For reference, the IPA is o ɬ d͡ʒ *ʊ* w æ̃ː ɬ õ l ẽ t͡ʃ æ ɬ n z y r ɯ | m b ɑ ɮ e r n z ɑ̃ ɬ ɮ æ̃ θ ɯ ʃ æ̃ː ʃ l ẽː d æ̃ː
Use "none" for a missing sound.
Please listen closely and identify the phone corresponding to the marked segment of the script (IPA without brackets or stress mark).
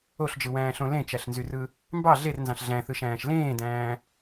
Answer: ɯ